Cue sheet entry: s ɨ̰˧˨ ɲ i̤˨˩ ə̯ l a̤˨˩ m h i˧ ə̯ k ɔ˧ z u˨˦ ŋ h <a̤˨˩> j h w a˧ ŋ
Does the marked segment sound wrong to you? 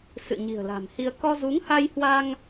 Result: yes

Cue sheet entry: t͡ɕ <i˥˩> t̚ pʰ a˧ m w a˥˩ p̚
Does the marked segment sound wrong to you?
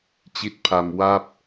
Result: no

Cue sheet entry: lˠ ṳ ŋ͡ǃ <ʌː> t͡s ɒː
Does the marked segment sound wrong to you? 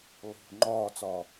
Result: yes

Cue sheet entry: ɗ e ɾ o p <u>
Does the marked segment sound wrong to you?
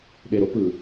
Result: yes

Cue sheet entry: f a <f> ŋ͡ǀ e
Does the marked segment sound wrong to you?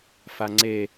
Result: yes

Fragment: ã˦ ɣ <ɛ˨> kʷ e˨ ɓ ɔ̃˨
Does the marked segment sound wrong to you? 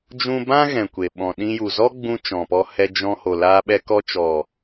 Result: yes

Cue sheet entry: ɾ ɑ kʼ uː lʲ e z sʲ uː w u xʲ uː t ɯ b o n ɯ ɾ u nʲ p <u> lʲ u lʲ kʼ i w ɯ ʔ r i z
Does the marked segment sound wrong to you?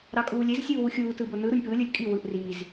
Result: yes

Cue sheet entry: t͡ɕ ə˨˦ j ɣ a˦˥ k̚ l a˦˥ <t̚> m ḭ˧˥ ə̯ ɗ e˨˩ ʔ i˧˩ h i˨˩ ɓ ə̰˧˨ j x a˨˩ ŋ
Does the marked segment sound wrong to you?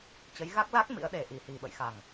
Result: yes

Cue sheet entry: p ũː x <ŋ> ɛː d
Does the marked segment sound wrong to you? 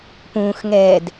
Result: no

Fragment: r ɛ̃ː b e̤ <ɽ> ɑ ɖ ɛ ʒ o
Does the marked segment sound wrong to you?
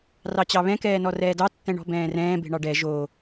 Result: yes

